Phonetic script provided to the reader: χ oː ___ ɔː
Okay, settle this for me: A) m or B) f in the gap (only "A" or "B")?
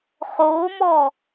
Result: A